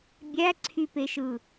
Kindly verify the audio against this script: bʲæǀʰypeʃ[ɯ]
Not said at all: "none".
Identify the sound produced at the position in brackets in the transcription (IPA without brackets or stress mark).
ɯ